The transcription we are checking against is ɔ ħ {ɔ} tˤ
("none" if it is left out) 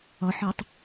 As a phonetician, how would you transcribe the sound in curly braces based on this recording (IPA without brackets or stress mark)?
ɔ